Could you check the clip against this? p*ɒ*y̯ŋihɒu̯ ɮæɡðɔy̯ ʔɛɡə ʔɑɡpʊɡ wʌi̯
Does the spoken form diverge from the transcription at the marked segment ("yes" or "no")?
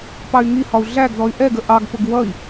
yes